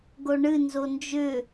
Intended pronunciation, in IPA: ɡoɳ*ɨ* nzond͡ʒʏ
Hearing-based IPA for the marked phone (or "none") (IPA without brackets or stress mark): ɨ